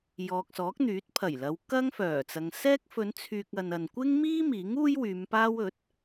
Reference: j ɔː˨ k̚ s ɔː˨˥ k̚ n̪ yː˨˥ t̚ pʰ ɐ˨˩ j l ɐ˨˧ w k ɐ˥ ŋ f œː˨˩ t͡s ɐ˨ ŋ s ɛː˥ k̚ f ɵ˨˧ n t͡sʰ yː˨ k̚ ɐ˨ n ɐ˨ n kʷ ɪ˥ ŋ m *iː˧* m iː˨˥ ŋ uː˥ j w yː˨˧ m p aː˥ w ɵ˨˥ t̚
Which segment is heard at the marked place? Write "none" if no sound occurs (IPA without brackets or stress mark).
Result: iː˥